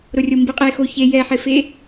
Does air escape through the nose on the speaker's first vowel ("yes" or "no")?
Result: no